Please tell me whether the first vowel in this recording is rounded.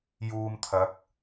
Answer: yes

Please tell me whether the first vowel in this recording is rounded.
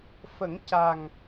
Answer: no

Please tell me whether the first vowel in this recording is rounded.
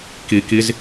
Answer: no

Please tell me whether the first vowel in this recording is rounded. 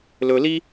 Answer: yes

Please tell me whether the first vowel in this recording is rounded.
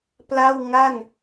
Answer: no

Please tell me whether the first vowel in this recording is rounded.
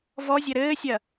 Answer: yes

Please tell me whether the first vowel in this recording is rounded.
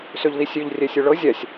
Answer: yes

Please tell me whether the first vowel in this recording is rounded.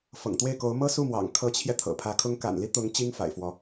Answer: no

